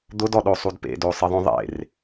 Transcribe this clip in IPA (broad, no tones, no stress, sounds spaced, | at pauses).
d̪ ʊ d ɔ ɗ o sˤ u d p ḛ d o sˤ ɪ ðˤ õ ðˤ ḛ r